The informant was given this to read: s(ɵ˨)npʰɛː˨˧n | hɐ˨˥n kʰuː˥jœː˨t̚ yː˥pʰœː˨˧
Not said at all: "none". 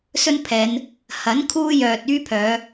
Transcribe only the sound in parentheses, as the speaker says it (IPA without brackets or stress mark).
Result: ɵ˥